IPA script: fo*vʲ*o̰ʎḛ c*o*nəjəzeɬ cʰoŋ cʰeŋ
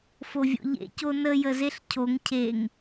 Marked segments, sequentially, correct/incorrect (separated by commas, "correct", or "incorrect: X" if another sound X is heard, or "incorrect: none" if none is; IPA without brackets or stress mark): correct, correct